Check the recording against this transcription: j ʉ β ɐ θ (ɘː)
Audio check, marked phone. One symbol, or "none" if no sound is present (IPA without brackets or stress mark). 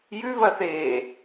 eː